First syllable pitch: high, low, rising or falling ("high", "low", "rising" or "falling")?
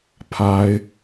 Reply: high